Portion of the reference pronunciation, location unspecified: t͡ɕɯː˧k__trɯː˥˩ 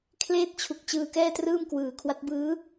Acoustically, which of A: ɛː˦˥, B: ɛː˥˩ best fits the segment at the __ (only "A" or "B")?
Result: B